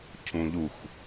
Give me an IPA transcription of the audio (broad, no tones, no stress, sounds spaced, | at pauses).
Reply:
cʰ ũ ʎ u x